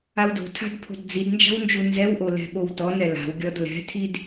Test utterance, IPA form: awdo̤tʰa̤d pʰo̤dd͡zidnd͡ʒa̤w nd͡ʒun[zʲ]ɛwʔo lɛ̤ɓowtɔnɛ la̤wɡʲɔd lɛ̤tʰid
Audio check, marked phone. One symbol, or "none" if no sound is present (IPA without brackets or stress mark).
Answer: z